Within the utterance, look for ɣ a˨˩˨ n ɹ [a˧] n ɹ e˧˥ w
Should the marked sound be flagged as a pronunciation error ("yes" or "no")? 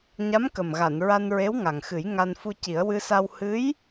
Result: no